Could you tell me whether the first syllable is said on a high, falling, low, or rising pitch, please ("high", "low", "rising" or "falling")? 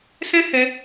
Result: high